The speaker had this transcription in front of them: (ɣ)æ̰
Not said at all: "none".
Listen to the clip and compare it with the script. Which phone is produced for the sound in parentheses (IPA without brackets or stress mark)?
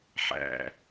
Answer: ħ